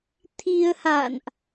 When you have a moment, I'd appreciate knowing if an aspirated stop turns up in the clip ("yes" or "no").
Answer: yes